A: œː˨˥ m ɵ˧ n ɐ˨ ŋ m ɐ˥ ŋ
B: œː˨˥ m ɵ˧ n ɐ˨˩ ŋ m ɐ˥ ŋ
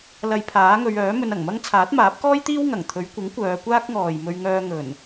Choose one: B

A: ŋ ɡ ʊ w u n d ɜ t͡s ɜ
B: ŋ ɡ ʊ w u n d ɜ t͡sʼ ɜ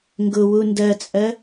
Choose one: B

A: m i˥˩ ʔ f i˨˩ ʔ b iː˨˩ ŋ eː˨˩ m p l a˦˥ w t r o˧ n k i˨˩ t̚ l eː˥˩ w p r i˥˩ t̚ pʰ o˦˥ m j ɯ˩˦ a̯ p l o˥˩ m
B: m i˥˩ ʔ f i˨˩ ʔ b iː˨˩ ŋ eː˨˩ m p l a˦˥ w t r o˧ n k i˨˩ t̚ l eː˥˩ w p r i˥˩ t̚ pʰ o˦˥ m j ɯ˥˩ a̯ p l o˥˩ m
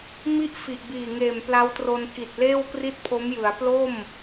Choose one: A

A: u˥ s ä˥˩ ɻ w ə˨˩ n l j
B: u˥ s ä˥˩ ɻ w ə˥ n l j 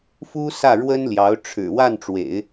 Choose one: B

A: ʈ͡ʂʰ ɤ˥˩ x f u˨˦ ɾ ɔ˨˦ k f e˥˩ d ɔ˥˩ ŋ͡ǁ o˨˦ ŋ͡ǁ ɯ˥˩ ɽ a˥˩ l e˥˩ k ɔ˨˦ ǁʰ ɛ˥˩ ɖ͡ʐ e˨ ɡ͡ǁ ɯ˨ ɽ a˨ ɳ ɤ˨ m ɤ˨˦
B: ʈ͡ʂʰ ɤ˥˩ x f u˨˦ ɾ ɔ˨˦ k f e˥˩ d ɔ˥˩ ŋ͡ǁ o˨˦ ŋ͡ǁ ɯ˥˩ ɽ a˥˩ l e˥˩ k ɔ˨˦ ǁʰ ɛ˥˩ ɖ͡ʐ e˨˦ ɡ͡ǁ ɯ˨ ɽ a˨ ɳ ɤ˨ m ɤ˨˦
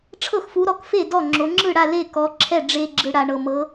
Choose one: A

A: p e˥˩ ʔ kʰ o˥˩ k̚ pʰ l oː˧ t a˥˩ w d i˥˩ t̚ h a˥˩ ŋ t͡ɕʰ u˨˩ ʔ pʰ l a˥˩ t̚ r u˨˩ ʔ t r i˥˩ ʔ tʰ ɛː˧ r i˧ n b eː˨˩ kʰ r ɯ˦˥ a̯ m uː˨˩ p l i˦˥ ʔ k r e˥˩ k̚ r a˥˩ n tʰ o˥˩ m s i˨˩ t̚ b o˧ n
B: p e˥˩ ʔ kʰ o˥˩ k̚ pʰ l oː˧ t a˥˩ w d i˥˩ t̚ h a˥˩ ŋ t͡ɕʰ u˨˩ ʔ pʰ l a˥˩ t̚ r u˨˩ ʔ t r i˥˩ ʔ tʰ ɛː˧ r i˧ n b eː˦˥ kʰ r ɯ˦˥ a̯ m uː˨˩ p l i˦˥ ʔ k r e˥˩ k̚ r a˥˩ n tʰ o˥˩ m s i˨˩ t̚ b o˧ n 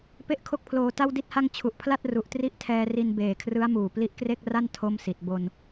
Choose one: A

